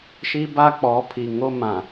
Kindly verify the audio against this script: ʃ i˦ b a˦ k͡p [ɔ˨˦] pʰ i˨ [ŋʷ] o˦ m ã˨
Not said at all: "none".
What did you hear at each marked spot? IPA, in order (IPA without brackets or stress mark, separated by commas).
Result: ɔ˨˦, ŋ